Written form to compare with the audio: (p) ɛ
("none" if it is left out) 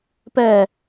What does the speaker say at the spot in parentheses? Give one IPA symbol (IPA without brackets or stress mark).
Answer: p